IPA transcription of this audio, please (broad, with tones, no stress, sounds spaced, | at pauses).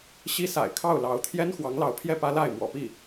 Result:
ɕ i˥ s a̰˨˩ ɪ̯ kʰ ɑ˥˩ ʊ̯ l ɑ˧˥ ʊ̯ t̪ʰ j ɛ˥ n x w ɑ˧˥ ŋ l ɑ˧˥ ʊ̯ pʰ j ɛ˥˩ p ä˥ l a˥˩ ɪ̯ m w ɔ̰˨˩ p i˥˩